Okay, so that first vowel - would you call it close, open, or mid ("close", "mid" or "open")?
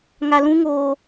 open